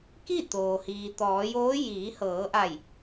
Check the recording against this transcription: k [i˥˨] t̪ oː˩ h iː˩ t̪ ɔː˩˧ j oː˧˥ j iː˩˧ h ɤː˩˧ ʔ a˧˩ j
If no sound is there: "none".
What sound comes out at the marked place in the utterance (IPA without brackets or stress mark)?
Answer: i˥˨